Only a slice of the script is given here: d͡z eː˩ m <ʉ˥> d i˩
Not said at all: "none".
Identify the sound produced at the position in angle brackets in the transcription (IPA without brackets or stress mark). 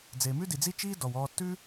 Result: ʉ˥